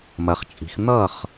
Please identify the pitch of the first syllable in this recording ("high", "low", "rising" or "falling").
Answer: rising